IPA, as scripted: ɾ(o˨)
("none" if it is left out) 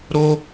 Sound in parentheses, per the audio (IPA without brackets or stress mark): o˦